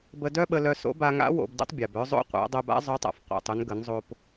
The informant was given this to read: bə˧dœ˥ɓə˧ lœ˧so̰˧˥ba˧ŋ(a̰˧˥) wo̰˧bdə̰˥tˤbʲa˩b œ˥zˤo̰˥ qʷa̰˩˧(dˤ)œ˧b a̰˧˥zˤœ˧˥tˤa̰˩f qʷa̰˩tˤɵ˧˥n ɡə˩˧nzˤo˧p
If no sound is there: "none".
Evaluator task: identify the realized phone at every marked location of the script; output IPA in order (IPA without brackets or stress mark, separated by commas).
a̰˧˥, dˤ